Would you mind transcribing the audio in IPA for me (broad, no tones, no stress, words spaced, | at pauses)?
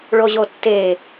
ɭoʑotːe